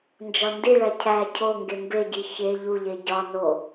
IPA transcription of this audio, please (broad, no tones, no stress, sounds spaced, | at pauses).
n d͡ʒ ɒ n d i ɭ æ cʰ æ cʰ o ŋ ɡ e m b e ɟ i ç e ʎ u ʎ e ɟ ɒ n o